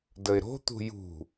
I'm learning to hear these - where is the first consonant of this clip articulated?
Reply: tongue tip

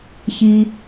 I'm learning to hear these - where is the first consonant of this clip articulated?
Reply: palate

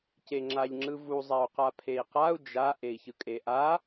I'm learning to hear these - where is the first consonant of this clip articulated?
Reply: palate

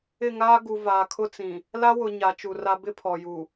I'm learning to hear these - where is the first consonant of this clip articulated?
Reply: velum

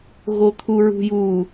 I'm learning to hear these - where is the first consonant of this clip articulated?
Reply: velum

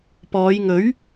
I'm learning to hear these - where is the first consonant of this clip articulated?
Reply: lips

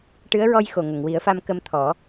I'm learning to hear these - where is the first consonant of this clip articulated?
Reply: retroflex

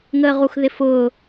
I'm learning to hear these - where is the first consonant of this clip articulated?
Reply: velum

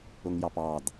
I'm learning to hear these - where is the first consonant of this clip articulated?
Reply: velum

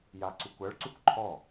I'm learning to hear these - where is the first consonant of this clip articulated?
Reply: palate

